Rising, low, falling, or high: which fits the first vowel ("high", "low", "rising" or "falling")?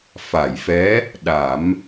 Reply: low